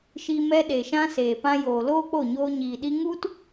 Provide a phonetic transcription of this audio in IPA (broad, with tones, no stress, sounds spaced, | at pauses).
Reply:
ʃ i˧ m ɛ˧ ɗ e˨ ʃ ã˧ s eː˨ p ã˧ j oː˨ l oː˦ k͡p o˦˨ ɲ oː˧ ɲ iː˨ ɗ i˧ ŋ u˦ t